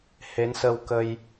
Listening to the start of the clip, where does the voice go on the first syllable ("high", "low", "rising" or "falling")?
rising